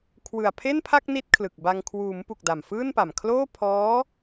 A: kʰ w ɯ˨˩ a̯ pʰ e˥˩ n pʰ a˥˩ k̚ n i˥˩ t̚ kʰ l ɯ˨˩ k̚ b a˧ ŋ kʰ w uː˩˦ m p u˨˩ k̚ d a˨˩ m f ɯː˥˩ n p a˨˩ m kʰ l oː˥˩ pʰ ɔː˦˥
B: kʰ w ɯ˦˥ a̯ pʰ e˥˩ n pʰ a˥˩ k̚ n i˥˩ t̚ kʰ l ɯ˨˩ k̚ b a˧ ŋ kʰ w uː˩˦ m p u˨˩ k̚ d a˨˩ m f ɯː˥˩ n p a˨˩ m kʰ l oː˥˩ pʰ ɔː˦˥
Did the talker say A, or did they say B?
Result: A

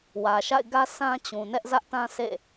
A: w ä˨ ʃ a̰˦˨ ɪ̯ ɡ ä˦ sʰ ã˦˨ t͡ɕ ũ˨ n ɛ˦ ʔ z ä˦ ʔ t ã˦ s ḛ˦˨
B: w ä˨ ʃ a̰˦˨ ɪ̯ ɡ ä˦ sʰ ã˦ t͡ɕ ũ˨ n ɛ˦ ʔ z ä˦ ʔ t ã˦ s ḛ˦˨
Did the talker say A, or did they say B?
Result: B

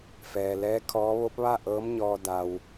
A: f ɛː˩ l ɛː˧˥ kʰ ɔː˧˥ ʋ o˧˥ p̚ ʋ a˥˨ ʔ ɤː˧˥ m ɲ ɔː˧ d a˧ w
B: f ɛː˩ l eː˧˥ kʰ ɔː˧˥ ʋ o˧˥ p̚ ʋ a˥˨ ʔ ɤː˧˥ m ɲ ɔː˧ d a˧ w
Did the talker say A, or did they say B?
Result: A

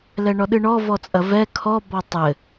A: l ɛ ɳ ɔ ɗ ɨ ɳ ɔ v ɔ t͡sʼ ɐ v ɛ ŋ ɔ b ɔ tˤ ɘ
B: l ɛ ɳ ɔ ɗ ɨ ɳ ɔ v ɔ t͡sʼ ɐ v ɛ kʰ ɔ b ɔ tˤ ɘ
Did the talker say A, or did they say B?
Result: B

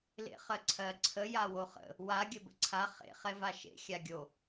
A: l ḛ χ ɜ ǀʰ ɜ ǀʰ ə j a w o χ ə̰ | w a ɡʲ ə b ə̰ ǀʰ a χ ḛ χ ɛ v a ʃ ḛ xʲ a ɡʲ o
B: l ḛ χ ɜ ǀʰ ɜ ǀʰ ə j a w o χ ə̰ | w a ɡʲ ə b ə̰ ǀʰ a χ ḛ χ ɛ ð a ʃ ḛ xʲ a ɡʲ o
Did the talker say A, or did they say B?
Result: A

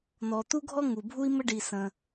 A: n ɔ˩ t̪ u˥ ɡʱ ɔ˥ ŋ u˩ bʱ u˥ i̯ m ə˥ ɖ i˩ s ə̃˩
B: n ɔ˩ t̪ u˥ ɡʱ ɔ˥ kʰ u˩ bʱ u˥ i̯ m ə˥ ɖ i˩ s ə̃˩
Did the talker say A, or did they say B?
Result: A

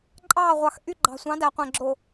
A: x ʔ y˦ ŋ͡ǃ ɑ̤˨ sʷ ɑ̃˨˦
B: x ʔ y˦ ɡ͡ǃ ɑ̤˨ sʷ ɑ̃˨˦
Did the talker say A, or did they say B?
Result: B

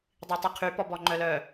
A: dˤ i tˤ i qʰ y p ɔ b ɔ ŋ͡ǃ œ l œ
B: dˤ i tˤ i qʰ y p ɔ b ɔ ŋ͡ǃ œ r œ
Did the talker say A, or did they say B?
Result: A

